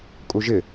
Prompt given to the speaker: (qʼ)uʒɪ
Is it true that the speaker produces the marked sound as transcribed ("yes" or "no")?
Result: no